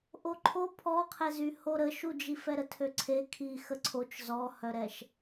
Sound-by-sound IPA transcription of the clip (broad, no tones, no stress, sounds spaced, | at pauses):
ʔ o ǃʰ o pʰ ɔ qʰ ɛ z y h o ɾ ə ʃ u d͡ʒ i f ɛ ɾ ə tʰ ø ǀʰ e kʰ i x ə ǀʰ o t͡ʃ z ɔ h œ ɾ ɛ ʃ